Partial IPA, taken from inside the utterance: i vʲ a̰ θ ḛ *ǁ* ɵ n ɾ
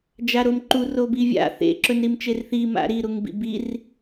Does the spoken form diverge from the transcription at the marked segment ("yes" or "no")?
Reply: no